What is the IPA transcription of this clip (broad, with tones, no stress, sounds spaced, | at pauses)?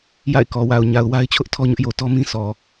j a̰˦˨ ɪ̯ k ɔ˨ w a˨ ʊ̯ ɲ a˨ ʊ̯ w a˦ ɪ̯ t͡ɕʰ ʊ˦ ʔ tʰ ɔ˦ ɲ ʊ˦ ʔ j o˨ t ɔ˦ m ĩ˦ sʰ ɔ˨